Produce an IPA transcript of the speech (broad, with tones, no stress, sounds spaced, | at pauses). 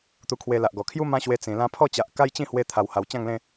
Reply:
t̪ u˧ kʰ w e˧ l a˨ ʔ ɡ ɔ˨˩ kʰ j u˦ m ã˦ ɕ w e˧ t͡s ĩ˨˩ l ã˧ pʰ ɔ˥˧ t͡ɕ a˨ ʔ k a˦ j t͡ɕ ĩ˥˧ h w e˧ t̪ʰ a˨˩ w h a˨˩ w t͡ɕ ã˥˧ ŋ l ẽ˥˧